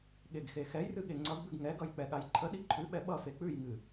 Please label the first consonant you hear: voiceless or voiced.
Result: voiced